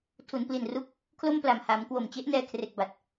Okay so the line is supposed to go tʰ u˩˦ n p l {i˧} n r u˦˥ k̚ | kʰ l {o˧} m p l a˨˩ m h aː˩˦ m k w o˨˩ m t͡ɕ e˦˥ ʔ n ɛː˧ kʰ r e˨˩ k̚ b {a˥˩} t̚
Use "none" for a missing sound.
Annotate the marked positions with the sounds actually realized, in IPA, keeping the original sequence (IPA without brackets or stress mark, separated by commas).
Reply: i˨˩, o˥˩, a˨˩